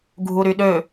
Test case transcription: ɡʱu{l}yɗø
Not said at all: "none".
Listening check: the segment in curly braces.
ɾ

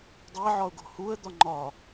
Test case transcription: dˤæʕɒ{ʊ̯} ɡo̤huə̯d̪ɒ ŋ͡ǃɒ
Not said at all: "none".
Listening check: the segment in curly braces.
ʊ̯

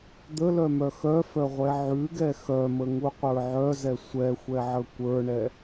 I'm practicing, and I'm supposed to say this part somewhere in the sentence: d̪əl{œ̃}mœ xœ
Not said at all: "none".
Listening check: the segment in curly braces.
œ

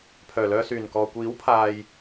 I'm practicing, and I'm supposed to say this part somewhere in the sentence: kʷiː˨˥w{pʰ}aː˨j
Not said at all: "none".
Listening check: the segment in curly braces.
pʰ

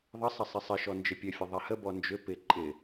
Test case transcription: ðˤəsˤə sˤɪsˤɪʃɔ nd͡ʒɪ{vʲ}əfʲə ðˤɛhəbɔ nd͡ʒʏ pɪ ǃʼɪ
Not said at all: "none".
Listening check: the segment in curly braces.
pʲ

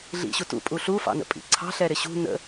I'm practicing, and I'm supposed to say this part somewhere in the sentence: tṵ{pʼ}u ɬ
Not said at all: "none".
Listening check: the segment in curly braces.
pʼ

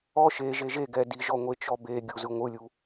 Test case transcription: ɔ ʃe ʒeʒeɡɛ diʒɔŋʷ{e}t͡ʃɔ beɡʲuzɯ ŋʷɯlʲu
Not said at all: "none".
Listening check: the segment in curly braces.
e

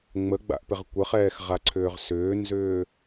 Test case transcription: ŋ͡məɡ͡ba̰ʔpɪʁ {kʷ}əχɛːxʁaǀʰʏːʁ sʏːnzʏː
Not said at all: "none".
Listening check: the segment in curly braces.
kʷ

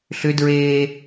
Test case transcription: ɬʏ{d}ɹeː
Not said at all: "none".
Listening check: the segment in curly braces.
d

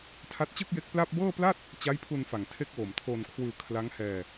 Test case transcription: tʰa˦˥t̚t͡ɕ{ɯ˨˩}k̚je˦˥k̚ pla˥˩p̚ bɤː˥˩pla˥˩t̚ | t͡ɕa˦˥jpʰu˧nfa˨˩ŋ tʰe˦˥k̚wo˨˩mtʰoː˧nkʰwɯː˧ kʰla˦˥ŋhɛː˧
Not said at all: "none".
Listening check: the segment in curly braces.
ɯ˥˩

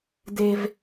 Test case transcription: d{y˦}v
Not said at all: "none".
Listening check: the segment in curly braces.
e˦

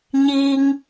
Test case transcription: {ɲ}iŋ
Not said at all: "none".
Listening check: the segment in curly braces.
ɲ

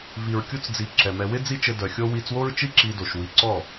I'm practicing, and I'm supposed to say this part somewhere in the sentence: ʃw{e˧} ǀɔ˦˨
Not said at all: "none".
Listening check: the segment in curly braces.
i˧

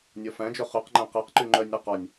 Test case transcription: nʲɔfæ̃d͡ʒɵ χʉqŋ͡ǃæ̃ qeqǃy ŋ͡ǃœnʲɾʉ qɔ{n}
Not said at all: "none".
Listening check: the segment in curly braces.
nʲ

